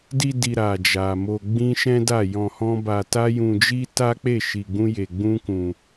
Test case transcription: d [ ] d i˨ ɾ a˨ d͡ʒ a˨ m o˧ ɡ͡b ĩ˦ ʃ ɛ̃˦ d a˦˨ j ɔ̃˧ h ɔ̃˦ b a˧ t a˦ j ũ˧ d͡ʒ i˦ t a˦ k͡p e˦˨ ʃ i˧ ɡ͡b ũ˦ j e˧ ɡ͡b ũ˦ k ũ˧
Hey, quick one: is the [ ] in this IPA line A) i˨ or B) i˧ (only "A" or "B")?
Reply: B